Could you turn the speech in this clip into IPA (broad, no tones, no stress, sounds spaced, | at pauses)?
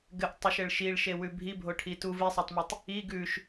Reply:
ɡ ɘ ʔ tˤ u ʃ ɘ ɭ ʃ i ɭ ʃ e w ʉ bʱ i bʱ o ʈʰ i t u v i sˤ o tˤ m i tˤ | i ɡ ʉ ʃ